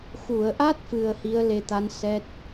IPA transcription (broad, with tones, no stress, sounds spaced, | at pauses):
x u˨˩˨ ə̯ ʔ a˦˥ t̚ f ɨ˨˩ ə̯ h i˧˥ ə̯ l e˧ t̪ a˧˥ n s ɛ˦˥ t̚